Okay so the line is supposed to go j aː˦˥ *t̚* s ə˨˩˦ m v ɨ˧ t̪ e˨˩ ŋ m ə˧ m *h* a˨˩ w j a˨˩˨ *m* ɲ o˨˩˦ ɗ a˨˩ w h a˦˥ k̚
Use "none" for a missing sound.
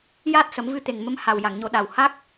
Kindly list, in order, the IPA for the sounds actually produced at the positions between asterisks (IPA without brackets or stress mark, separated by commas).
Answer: t̚, h, ŋ